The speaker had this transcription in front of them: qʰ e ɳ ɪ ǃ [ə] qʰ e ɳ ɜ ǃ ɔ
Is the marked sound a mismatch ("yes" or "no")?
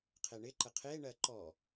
no